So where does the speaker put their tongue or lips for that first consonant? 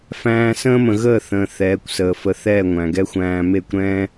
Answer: lips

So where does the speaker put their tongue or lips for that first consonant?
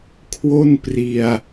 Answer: velum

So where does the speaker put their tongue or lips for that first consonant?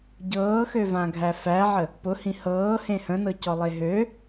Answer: palate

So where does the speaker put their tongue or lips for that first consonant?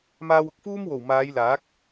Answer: lips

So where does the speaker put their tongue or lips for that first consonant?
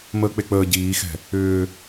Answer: lips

